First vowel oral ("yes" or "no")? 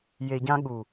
yes